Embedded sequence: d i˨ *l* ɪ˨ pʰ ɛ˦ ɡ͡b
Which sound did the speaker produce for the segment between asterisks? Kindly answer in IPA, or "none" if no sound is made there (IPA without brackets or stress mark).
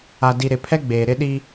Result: ɾ